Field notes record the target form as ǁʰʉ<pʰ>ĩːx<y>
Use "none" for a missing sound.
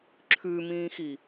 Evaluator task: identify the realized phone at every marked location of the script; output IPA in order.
m, i

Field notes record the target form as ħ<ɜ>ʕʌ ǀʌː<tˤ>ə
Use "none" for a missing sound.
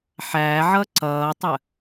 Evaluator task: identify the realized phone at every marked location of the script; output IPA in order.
æ, tˤ

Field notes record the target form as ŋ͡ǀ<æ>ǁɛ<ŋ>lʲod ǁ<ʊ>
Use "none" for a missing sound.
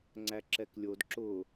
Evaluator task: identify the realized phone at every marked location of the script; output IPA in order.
æ, k, ʊ

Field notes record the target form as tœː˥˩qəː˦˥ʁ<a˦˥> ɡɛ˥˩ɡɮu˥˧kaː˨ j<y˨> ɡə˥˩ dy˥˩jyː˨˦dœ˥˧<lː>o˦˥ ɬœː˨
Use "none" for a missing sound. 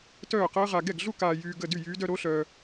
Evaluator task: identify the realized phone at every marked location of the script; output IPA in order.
a˨, yː˨, ɾ

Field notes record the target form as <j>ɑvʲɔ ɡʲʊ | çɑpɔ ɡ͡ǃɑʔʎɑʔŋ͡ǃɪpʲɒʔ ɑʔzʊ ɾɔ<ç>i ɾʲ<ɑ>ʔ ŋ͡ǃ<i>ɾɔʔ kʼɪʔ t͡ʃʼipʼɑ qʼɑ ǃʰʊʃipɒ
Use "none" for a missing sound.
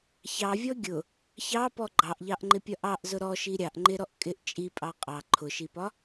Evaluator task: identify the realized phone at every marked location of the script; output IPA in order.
ç, ʃ, ɑ, ɪ

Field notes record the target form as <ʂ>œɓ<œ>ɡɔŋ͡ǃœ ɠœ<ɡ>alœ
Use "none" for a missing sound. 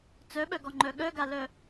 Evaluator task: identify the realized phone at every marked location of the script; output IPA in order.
t͡s, œ, ɡ

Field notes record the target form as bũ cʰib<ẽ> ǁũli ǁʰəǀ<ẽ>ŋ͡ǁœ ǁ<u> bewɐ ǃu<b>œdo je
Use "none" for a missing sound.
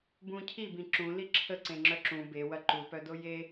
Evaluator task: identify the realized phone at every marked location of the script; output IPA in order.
ĩ, ẽ, ũ, p

